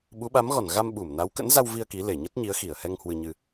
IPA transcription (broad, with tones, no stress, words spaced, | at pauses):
ɓu˨˦ɓa˨˦mɣɔ˧˩n ɣa˧mɓu˧˩m na˨˦wkə̰˧˥nza˧w vi˧ə̯ ki˨˦ le˧˩ ɲə˦˥t̚ɲi˨˦ə̯xi˧˩ə̯hɛ˧ŋ hwɨ˧ɲɨ˧